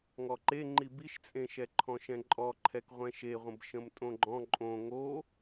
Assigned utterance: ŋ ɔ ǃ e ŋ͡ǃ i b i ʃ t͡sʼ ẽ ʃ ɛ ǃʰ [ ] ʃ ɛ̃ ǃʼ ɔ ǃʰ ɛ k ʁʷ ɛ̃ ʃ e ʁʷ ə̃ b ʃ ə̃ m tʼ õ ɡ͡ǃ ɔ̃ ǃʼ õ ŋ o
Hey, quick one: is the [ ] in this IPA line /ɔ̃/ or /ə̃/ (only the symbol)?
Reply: ɔ̃